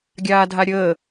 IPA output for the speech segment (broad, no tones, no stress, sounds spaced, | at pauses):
ɡʲ aː dʱ a ɾʲ əː